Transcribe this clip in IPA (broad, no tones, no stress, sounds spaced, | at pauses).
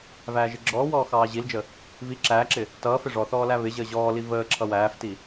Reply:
v æː ʒ ɪ ɡ͡ǁ ɔː w ɔː x ɑː ʑ i l d͡ʒ ə | v i ǁ æː ǁ ɪ | t ʌː f ɪ ʐ ɔ θ ɔː l æ β ɪ ʑ əː ʑ ɔː l i v əː ǁʰ ʌ w æː f t i